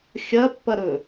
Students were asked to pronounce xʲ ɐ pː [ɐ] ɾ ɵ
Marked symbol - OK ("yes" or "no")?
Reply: yes